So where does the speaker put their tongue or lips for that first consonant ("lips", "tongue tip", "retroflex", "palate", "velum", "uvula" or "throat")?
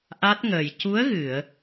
throat